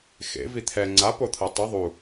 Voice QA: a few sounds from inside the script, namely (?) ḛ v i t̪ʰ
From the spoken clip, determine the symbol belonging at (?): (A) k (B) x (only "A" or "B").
B